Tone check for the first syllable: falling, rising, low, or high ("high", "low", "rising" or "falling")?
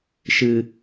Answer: low